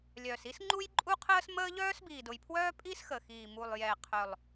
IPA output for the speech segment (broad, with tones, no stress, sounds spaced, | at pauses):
lʲ œ˨˩ s i˥ s ŋ͡ǃ u˥ j ǃʼ u˥ qʰ əː˥ s m əː˥ ʎ œː˥ s b iː˨˩ d ʊ˨˩ j pʰ w œː˥ pʼ i˥ s x ə˨˩ x iː˨˩ m u˨˩ lˠ j ɛ˨˩ qʰ œ˨˩ lˠ